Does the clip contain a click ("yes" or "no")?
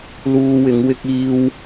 no